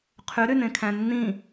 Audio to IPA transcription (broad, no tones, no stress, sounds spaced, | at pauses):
qʰ y ɾ y n ẽ kʰ æ̃ nː ĩ